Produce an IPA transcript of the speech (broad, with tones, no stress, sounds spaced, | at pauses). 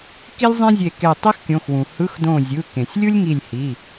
k i˥ lʲ zˤ ẽ˥ zʲ e˧˩ k e˧˩ tˤ e˥ x kʲ õ˩˧˩ x w ũ˩ h ɯ˧˥˧ x d õ˧˩ zʲ ɯ˩˧˩ k ẽ˩ sʲ lʲ u˥ lʲ ŋ i˧˩ lʲ h i˩˧˩